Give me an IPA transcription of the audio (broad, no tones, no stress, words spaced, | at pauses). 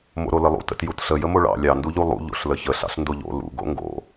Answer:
mo̰ɾoləlˠṵ tə̰tjutɬə jəmoɭɑ̰ lʲɑ nduʎulˠṵ ʎo̰ɬləçə ɬɑ̰ɬndoʎo̰ lṵ ɡo̰ŋɡo̰